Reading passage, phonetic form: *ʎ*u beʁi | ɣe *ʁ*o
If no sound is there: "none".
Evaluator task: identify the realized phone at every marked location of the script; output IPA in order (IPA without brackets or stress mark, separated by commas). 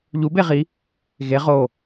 ʎ, ʁ